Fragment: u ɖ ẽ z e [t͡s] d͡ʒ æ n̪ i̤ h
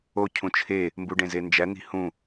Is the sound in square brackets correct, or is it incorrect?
incorrect